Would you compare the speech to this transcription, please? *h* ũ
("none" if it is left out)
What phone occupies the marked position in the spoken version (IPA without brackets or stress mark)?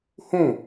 h